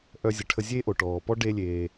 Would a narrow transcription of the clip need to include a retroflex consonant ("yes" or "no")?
yes